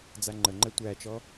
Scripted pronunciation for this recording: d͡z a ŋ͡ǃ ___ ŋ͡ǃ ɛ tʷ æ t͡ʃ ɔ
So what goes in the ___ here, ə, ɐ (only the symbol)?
ə